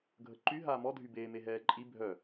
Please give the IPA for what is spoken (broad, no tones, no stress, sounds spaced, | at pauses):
ɡʱ ə ǃ y ɦ aː m ɔ dʱ y b eː m e ɦ ɛː ǃʼ i bʱ œ